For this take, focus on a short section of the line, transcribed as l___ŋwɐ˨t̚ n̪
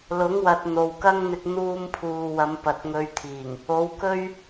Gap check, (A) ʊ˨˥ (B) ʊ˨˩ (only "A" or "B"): A